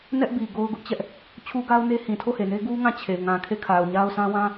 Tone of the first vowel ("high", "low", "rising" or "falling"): high